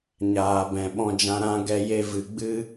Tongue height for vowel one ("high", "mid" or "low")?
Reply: low